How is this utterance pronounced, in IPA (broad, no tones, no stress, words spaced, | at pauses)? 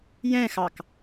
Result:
jɛ̃xɑk